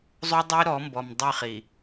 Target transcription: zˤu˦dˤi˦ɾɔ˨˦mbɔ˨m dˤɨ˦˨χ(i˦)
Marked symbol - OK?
no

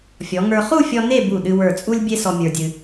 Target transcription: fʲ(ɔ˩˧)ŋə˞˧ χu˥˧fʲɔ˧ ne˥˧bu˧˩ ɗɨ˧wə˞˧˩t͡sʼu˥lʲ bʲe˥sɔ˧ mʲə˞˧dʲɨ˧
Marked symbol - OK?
yes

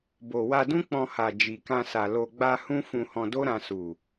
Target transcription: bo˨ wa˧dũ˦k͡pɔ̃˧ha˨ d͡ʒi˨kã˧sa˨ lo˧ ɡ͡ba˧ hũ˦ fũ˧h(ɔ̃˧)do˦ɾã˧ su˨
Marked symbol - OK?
yes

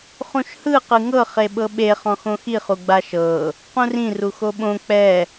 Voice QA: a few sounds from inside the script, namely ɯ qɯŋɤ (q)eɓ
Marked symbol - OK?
no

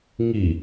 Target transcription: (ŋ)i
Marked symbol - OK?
yes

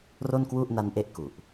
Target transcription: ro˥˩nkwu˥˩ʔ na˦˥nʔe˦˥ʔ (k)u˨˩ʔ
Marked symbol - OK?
yes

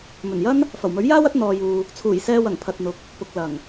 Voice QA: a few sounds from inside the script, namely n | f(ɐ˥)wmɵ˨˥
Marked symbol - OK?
no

